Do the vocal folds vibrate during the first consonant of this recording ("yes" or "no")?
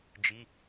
yes